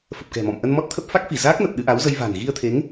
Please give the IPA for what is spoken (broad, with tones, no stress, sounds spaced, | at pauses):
f ə˨˩ p̚ k ɛ̤˨˩ m ɔ̰˧˨ m ʔ ə˧ n m ɔ˦˥ t̚ t̪ʰ ə˦˥ p̚ f a˦˥ k̚ f i˧˩ z aː˦˥ k̚ n ə˨˩ p̚ ɗ ɨ˧ ʔ a˨˦ w z ə˧ j v a̤˨˩ n ɣ i˧ ə̯ t̪ʰ e˨˦ ŋ